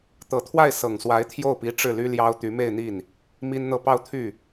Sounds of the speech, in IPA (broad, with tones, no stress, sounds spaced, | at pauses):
t̪ ɤ˨˩ t̪ʰ w a˥˩ ɪ̯ s ɤ˨˩ ŋ s w a˧˥ ɪ̯ t̪ʰ j o˥˩ ʊ̯ p i˧˥ ʈ͡ʂ ɻ̩˥˩ l y˥ l j ɑ˥ ʊ̯ t̪ y˧˥ m e˥˧ ɪ̯ n̪ i˥˩ n | m i˥ n n̪ ɤ˥˧ p ɑ˥˧ ʊ̯ t̪ʰ y˥˩